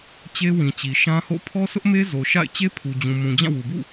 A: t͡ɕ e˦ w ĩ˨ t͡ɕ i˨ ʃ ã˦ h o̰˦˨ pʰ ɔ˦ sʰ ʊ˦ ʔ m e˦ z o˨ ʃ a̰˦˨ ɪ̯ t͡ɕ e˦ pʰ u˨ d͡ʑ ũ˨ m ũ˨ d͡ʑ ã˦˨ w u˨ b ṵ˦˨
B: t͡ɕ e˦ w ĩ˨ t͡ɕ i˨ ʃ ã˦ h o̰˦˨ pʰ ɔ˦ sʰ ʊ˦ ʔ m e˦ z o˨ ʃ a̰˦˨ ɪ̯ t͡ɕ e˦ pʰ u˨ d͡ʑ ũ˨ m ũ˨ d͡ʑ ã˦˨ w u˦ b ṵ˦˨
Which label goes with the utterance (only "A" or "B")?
A